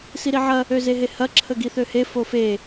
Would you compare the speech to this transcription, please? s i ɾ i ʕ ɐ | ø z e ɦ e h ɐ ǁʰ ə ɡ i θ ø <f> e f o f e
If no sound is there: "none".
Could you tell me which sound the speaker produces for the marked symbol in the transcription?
h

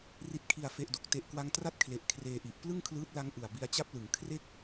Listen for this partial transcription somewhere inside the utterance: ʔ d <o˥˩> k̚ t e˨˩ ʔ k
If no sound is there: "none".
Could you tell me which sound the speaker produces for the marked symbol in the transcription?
o˨˩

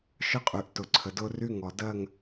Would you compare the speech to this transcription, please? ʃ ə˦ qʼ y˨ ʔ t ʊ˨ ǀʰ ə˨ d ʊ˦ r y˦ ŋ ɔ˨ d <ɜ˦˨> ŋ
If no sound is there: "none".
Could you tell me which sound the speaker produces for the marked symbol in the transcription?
ɜ˦˨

